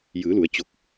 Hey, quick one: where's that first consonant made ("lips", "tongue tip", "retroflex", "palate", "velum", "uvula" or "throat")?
palate